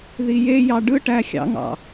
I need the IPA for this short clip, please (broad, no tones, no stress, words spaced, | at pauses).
ðijejɑ ɖɯʈæ xʲɑ̰ŋɑ̰